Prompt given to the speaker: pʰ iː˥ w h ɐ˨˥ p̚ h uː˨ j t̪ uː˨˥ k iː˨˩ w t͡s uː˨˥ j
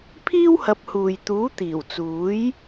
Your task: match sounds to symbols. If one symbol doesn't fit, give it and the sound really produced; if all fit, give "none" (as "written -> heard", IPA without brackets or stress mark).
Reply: k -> t̪